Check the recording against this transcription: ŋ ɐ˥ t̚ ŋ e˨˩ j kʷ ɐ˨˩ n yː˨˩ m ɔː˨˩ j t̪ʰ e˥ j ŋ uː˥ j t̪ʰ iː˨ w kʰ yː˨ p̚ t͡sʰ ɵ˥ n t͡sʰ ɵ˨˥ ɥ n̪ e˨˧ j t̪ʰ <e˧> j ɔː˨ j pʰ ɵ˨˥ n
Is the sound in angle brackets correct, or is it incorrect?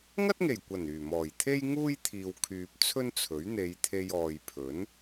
correct